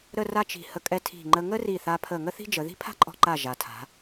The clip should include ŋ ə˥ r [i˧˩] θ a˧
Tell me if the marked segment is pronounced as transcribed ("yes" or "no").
yes